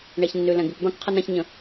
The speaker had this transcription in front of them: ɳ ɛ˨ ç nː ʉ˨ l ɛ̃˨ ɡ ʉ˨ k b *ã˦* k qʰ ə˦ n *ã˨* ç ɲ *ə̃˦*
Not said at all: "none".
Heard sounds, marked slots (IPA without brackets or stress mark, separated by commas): ã˦, ã˦, ə̃˦